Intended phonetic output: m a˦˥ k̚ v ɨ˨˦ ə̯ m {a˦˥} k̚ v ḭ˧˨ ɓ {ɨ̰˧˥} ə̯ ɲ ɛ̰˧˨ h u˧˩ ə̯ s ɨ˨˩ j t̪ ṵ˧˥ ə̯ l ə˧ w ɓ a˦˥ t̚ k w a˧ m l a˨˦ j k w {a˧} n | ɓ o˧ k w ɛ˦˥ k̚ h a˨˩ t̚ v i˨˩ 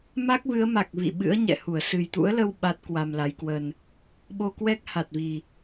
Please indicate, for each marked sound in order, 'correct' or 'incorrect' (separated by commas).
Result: incorrect, correct, incorrect